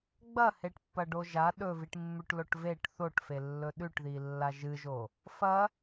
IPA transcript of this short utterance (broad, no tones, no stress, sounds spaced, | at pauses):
ɡ͡b ɐ h e ʈ pː ɐ ɖ o ʒ a ɗ ɵ v i ʈ mː ʉ ʈ l o ʈ v e ʈ θ o ʈ f e lː ɵ ɗ ʉ ʈ ð i lː a ʒ ɨ ʒ o | f ɐ